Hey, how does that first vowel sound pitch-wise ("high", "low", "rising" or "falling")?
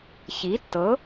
rising